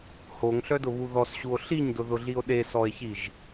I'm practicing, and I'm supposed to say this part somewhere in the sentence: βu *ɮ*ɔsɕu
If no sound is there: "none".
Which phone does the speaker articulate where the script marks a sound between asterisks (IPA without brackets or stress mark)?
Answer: ð